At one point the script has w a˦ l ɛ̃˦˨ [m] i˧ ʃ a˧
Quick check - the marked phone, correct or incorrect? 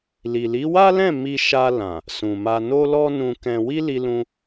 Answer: correct